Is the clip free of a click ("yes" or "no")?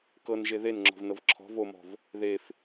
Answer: no